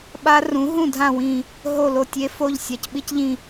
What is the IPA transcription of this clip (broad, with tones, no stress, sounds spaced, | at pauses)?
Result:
ɓ a˦˥ r ũ˨˥ ɦ ũ˦˨ dʱ ã˦˨ w ĩ˦˨ | ɦ o˦˨ l o˦˨ tʲ e˦˥ f o˦˨ ʎ sʲ a˨˥ c ɓ i˦˥ c ʎ ĩ˦˨